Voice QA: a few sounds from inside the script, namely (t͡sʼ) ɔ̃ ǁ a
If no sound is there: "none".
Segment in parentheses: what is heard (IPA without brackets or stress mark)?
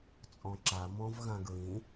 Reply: t͡sʼ